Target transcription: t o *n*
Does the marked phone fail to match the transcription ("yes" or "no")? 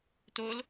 yes